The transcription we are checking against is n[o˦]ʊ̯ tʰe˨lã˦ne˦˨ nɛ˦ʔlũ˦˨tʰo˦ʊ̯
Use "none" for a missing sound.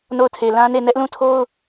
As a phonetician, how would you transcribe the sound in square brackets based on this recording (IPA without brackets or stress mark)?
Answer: o˦˨